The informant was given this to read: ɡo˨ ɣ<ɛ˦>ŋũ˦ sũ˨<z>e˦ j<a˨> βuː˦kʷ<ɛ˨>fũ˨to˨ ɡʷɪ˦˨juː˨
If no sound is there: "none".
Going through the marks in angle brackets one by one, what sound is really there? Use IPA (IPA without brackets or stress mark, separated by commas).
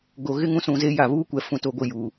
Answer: ɪ˦, z, a˨, ɛ˨